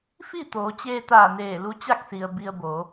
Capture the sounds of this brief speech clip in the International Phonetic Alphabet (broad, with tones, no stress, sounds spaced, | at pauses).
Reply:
f i˥˨ t̪ oː˩˧ t͡ɕ eː˧ t̪ aː˧˩ n eː˧˩ l u˧ t͡ɕ a˥˨ k̚ s i˩ ə̯ b i˧ ə̯ b o˩˧